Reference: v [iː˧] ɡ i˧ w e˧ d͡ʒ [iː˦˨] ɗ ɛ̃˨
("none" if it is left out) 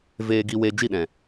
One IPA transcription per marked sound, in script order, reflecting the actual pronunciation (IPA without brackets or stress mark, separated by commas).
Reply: eː˧, i˦˨